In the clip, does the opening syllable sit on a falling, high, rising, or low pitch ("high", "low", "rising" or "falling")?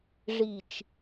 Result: low